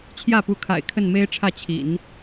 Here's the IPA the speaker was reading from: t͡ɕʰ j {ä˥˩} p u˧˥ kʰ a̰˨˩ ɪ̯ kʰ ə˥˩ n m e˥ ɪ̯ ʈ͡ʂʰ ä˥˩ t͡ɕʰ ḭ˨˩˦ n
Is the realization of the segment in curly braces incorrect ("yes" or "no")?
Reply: no